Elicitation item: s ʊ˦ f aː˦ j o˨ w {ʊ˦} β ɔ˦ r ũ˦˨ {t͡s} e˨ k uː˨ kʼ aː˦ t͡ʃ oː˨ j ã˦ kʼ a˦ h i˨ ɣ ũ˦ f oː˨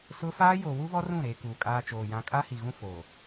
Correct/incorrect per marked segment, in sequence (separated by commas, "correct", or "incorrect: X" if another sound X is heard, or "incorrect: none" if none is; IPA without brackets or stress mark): incorrect: u˦, incorrect: ɾ